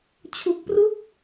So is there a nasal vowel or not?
no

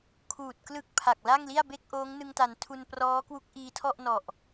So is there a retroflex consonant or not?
no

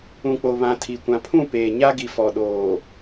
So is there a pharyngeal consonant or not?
no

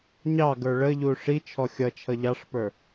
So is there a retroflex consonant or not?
yes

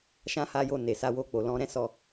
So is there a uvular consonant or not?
no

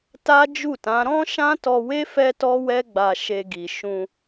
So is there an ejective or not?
no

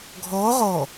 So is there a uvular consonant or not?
yes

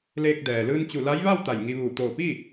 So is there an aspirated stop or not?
no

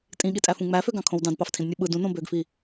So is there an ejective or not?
yes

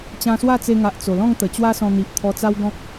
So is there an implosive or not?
no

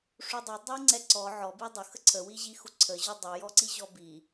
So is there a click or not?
yes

